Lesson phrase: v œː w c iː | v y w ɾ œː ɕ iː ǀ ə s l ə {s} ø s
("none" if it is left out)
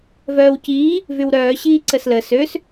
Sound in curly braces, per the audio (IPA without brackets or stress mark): s